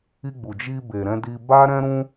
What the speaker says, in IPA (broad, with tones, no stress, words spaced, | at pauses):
i˧ɡ͡bu˨d͡ʒi˧ be˨ɾɛ̃˧di˧ ba˦ɾɛ̃˦ɾũ˦